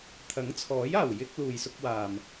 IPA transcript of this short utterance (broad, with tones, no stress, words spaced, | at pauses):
t̪ʰɐ˨˥ŋt͡sʰɔː˨˥jaː˨˩w jɪ˧k̚ luː˨jsʊ˧k̚waː˨m